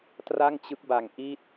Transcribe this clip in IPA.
tra˥˩ŋt͡ɕɯ˦˥k̚ba˨˩ŋ ʔi˥˩t̚

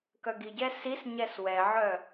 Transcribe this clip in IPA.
kœɡiɟɛ sisɲɛs wɛʕœ

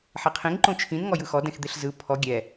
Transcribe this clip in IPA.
ħeqʰĩŋ ǃõt͡ʃʰĩn ŋɔjɯxɔ dɛ̃xd̪eɬzɯ pʰɔ ɡʲɛ

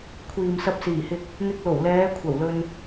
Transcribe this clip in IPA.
kʷʰiː˨msɐ˧p̚siː˨˩hɪ˧k̚ | n̪ɪ˧k̚lo˨˩wlɛː˨˧ kʷʰɐ˨˩wlɵ˧n

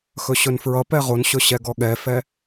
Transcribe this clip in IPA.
xɵɕɵnfɹʌpɛ ʁonɕɵ ɕɛɡɔɠɛfɛ

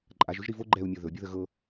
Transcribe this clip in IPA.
ǃʼaʒ ɵʒɾivo ɡ͡ǃɛu̯mʲɤ ðɵ bʲuðəɣɤ

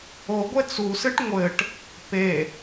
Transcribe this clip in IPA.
oɡʷe t͡susɨʈ ŋʷɘʈ | pe

